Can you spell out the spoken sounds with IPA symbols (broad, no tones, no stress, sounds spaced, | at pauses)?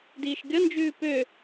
d iː ʃ ɡʲ ʌ n d͡ʒ ʉː p ø